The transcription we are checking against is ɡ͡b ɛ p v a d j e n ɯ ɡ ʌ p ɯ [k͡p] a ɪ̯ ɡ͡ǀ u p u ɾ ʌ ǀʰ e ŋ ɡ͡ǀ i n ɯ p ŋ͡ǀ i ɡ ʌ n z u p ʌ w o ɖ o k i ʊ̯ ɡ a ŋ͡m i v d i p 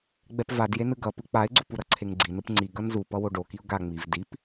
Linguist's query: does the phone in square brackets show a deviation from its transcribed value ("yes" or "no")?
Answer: no